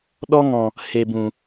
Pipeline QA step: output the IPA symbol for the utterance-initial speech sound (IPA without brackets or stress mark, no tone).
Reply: ɗ